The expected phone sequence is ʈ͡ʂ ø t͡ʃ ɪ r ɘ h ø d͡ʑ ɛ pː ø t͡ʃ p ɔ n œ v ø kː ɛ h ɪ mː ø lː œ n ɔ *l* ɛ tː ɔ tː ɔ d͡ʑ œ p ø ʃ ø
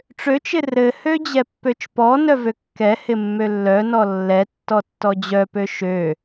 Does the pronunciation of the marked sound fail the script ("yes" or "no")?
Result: yes